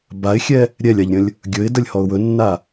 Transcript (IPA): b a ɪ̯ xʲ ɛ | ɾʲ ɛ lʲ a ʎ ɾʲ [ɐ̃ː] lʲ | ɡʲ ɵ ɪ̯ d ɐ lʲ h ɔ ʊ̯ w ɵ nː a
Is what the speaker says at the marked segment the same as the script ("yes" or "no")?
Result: no